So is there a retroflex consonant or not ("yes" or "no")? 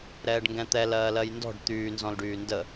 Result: yes